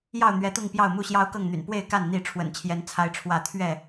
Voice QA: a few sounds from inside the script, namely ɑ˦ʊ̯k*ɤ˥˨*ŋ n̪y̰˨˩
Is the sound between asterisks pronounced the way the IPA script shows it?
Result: yes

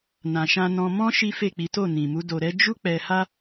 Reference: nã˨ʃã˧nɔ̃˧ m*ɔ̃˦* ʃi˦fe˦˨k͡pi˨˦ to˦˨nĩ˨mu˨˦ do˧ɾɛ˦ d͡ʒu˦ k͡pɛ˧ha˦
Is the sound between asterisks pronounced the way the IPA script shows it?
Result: yes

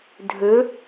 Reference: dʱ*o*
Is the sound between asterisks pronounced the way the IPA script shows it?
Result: no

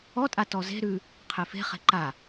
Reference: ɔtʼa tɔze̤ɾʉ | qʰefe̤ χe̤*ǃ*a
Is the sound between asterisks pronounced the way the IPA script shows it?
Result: yes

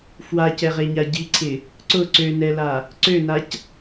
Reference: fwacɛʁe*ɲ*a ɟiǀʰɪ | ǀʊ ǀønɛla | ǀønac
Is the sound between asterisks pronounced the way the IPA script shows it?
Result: yes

